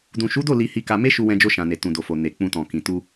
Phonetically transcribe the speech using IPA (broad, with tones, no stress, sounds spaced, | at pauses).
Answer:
d ũ˨ ʃ u˨˦ d o˦˨ l i˧ h i˧ k a˧ m e˦ ʃ u˧ w ɛ̃˧ d͡ʒ o˧ ʃ ã˨ n e˨ t ũ˨ d o˨ f o˨ n e˨ k͡p ũ˧ t ɔ̃˨ k ĩ˨ t u˧